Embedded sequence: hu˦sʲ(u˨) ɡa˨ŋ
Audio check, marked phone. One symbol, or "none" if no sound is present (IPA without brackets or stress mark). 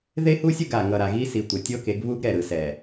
u˦